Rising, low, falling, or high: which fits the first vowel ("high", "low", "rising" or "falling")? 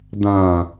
low